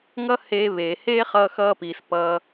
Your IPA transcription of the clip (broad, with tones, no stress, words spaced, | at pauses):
ŋʌ˦heː˧βeː˨ heː˦χʌː˧xʌː˧piː˨s pʌː˧